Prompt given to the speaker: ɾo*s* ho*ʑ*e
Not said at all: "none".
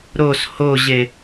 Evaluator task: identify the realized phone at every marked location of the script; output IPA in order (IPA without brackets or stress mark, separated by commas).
s, ʑ